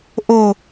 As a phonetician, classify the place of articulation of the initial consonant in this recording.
glottal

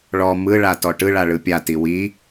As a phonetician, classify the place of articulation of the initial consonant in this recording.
retroflex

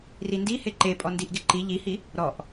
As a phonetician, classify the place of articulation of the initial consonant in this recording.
alveolar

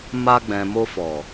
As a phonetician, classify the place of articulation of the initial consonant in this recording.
labial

